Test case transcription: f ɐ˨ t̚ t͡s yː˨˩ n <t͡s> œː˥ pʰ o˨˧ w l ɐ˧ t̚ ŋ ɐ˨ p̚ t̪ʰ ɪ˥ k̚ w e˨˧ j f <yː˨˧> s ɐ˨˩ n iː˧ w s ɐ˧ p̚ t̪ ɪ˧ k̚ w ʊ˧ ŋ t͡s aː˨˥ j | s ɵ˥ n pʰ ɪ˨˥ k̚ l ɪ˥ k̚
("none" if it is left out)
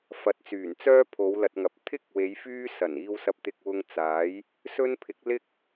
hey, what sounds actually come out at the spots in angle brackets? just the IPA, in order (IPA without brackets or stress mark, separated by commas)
t͡s, yː˥